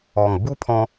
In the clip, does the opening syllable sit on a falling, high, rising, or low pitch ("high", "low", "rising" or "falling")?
low